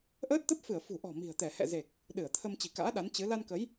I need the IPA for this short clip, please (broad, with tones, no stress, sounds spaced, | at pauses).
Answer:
ʔ əː˦˥ t̚ t̪ ə˦˥ p̚ f ɨ˧˩ ə̯ f ṳ˨˩ ʔ ɔ̤˨˩ m i̤˨˩ ə̯ t̪ ɛ˧˩ h ɛ̰˧˨ z e˨˩ k̚ | ɗ ɨ˧˩ ə̯ t̪ʰ ə˧ m t͡ɕ i̤˨˩ k a̰ː˧˥ ɗ a˨˦ n t͡ɕ ɨ˨˦ l a˧ n k ə˨˦ j